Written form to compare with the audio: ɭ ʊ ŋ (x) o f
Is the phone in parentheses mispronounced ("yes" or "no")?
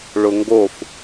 yes